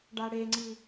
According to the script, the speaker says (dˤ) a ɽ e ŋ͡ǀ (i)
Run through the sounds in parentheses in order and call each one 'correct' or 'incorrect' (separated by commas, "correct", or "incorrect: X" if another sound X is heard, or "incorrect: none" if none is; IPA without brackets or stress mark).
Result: incorrect: ɖ, correct